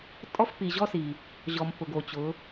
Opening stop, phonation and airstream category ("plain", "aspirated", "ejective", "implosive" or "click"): ejective